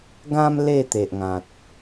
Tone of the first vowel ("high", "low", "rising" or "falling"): high